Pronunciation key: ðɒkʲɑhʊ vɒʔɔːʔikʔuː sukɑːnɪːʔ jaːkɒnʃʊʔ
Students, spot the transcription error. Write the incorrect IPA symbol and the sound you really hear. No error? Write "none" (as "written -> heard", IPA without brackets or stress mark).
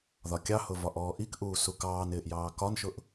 aː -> ɑː